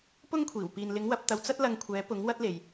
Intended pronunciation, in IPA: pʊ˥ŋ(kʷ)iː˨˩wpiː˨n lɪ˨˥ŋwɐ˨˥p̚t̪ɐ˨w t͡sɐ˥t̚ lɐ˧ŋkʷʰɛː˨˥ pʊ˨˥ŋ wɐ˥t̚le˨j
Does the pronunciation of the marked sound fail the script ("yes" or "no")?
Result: yes